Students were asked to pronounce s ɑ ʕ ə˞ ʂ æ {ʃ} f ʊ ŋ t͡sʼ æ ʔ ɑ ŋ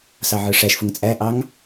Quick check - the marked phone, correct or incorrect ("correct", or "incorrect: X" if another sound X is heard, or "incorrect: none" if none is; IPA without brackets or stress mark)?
correct